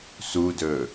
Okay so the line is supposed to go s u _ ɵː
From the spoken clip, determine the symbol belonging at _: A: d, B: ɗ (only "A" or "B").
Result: A